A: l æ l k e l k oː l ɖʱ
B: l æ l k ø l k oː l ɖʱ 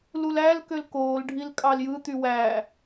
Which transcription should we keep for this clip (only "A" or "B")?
B